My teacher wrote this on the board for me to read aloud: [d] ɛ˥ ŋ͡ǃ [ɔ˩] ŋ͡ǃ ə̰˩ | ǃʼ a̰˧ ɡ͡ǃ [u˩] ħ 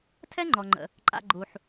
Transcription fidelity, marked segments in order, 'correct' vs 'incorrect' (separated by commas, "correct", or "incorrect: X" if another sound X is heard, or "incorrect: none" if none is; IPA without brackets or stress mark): incorrect: tʰ, correct, correct